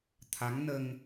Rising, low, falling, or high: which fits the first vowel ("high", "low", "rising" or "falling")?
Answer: rising